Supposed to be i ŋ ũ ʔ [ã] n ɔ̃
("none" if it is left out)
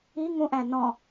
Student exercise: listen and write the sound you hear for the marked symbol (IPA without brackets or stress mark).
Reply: æ̃